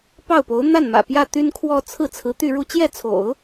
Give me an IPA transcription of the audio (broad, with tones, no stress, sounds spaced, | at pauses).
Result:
p ɑ˥˩ ʊ̯ p o˧˥ ʊ̯ n̪ a˥˩ n m ä̰˨˩ p j ä˥˩ t̪ y˥ n kʰ w ɔ˥˧ t͡sʰ ɹ̩˥˩ t͡sʰ ɹ̩˧˥ t̪ y˥˧ ɻ u˥˧ t͡ɕ j ɛ˥˩ t͡sʰ o̰˨˩˦ ʊ̯